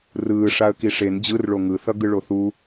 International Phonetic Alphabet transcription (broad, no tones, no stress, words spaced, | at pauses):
rɯː ʂaə̯kiʂen d͡ʑɯrɭo ŋɯθʌ ɡɯɭoθu